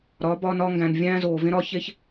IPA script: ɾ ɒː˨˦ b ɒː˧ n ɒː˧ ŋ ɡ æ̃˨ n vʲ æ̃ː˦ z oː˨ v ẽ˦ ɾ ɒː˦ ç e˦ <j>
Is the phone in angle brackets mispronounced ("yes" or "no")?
yes